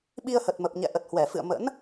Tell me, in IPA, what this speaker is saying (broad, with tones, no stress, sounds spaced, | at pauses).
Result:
ɓ i˧ ə̯ h ə˨˩ t̚ m ə˨˩ p̚ ɲ ɛ̰˧˨ ʔ ə˨˩ t̚ h w ɛ˧˩ f ɨ̰˧˨ ə̯ m ə̰˧˥ n